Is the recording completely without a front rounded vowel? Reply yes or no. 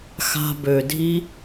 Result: no